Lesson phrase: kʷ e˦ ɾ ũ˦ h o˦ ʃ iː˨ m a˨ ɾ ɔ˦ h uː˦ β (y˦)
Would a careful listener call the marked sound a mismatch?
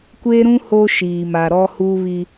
yes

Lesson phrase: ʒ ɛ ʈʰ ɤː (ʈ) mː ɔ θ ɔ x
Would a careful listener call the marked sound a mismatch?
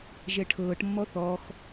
no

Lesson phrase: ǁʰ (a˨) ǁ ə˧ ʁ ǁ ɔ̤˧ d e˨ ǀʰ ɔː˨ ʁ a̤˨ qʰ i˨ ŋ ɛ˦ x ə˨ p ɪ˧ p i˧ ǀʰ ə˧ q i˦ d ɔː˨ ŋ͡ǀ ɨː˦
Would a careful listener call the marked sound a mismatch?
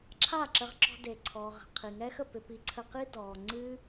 yes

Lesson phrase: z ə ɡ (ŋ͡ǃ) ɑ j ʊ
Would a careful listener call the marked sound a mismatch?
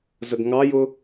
yes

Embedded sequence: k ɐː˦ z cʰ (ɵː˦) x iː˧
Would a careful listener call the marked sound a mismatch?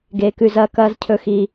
yes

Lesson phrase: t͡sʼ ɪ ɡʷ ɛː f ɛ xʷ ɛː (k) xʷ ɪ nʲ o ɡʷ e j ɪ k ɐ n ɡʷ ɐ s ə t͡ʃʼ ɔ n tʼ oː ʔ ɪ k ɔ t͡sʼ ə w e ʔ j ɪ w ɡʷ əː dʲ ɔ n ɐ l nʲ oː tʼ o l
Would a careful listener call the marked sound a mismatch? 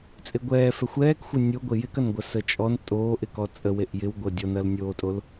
no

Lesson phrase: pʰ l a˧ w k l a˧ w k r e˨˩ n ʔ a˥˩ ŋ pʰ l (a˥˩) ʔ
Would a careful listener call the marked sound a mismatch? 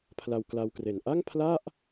no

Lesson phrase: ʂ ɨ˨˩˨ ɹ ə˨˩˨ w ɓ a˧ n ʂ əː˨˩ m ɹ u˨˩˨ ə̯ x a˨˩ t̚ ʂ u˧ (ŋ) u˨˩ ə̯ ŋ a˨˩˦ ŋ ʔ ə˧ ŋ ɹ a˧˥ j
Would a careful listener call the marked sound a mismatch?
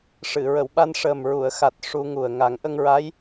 no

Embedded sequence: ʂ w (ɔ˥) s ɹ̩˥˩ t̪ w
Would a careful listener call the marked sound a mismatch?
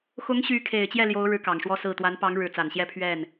no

